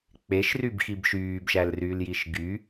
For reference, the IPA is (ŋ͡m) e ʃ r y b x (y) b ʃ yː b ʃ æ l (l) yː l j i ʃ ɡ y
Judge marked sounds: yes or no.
no, no, no

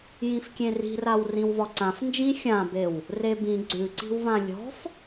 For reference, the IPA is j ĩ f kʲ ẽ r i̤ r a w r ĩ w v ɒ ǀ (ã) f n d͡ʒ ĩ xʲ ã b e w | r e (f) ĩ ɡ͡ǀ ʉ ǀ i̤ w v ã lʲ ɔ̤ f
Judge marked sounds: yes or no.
yes, no

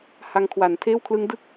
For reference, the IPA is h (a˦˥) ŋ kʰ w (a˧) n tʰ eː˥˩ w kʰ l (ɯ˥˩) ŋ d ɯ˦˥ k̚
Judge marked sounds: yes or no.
no, no, no

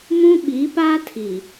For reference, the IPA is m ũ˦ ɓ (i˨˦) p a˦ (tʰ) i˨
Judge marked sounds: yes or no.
yes, yes

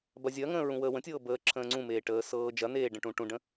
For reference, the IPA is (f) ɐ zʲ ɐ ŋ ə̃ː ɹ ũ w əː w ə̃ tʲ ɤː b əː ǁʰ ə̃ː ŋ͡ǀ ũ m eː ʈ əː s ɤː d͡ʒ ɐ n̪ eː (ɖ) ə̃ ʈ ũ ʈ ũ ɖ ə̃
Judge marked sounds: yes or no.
no, yes

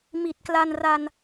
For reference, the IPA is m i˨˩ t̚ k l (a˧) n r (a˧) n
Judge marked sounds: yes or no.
yes, yes

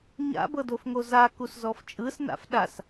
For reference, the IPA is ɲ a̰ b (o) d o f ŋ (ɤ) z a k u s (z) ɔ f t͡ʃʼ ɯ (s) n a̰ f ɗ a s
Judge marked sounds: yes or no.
no, no, yes, yes

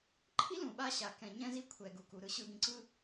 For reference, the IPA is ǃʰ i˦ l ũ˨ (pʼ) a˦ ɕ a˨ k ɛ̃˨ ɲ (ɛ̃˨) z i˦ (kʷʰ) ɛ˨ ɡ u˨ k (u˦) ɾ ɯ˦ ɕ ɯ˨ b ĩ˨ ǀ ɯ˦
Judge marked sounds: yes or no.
no, no, yes, no

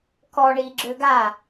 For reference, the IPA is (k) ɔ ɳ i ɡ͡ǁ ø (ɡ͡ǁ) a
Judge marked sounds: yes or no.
yes, no

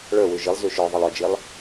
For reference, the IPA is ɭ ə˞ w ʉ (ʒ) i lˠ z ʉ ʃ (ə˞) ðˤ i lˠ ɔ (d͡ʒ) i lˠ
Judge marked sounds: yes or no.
yes, yes, yes

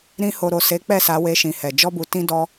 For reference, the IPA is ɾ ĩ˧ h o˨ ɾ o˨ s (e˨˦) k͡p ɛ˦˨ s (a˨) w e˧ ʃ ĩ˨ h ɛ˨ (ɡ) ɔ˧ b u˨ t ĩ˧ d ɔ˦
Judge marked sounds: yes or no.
yes, no, no

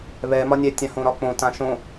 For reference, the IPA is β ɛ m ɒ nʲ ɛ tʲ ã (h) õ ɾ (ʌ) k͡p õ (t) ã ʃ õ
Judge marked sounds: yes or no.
yes, no, yes

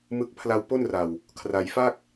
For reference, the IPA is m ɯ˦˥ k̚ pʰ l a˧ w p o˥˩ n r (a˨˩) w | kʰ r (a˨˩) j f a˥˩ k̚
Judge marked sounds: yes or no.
yes, no

